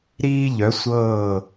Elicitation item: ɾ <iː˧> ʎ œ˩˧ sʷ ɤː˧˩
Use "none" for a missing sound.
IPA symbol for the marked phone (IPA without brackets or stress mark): iː˧